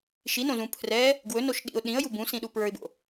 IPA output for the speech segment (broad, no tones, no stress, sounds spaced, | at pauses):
ʃ i n õ z ũ pʰ r ɛ | ɡ w ɵ n o ʃ ɗ ḭ ʊ̯ ɗ ĩ ə̯ j u b ũ s ĩ ɗ u p ɹ ə˞ ɪ̯ b o̰